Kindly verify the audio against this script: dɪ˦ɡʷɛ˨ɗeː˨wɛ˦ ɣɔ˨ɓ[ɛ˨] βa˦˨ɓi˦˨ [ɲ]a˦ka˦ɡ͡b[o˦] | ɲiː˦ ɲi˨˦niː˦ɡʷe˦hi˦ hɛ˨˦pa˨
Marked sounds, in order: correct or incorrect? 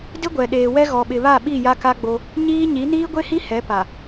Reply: incorrect, incorrect, correct

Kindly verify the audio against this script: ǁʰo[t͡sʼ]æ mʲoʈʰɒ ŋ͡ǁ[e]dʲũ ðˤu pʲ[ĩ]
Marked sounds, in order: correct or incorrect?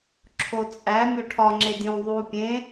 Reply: correct, correct, incorrect

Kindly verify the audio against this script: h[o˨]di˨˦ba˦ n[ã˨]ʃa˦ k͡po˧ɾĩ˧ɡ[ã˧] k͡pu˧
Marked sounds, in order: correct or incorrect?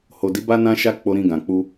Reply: correct, incorrect, incorrect

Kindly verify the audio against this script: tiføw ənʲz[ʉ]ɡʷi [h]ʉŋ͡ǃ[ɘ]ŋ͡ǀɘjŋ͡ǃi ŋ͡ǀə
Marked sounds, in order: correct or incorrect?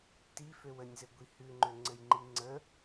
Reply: incorrect, correct, incorrect

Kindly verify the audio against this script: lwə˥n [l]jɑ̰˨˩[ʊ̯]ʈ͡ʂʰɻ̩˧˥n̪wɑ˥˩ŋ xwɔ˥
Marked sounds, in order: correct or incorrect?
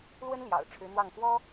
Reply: correct, correct

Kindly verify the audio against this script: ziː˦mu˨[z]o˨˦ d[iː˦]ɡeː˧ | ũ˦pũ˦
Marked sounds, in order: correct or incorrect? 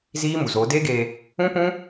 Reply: correct, incorrect

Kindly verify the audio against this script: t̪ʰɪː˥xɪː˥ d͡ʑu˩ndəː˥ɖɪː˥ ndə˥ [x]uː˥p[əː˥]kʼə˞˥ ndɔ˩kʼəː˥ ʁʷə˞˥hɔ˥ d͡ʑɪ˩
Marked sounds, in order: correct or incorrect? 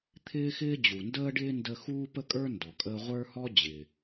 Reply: correct, incorrect

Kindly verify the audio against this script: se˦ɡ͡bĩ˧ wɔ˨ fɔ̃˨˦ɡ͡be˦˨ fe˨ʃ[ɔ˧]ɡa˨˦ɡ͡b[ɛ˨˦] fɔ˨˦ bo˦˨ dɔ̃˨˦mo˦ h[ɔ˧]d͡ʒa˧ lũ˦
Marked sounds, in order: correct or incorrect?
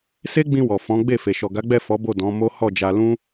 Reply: incorrect, incorrect, incorrect

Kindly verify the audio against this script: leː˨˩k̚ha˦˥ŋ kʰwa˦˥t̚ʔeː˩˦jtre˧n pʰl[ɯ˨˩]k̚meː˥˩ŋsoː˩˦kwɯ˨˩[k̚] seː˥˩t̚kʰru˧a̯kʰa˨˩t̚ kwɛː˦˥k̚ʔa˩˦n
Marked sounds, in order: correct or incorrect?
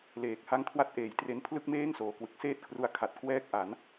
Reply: incorrect, correct

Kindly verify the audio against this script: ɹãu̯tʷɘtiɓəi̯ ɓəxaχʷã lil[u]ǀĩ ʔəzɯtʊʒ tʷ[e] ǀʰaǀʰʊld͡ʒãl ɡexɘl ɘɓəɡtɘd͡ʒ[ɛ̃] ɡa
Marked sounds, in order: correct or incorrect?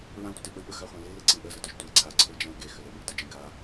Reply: incorrect, correct, correct

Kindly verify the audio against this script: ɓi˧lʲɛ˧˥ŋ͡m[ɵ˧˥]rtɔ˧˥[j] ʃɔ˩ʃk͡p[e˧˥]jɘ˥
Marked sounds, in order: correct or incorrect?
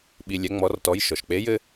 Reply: incorrect, correct, correct

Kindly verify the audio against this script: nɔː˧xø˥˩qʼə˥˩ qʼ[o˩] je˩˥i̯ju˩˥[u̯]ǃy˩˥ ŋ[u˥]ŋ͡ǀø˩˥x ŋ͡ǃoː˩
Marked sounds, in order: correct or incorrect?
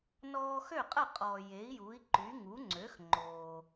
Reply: incorrect, incorrect, incorrect

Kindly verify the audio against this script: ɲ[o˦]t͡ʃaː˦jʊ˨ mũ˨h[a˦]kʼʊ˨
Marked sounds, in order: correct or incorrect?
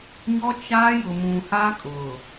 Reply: incorrect, correct

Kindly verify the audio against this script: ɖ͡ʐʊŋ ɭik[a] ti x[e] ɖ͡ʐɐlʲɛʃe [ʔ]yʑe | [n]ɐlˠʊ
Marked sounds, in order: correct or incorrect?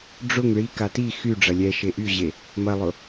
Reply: correct, incorrect, correct, incorrect

